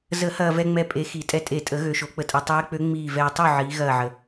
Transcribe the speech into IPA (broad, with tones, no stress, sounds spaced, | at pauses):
z ə˨˩˦ h ɐː˨ v ɛ˨ ŋ͡m ɛ˨ pʼ e˨˦ x i˨˩˦ tʼ ɛ˨ tʼ e˨˩˦ tʼ ə˨˩˦ ɣ ø˨˦ ʃ o˨˩˦ k͡p ə˨˦ tʼ ɛ˨ tˤ eː˨˦ k͡p ø˨˦ ŋ͡m iː˦˨ v ɛː˨ tˤ o˦˨ ʕ iː˨˦ ɣ ɐː˦˨ ʕ ə˨